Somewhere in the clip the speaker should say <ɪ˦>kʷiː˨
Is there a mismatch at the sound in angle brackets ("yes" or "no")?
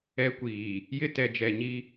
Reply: yes